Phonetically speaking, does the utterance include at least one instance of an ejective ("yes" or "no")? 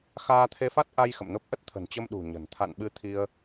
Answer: no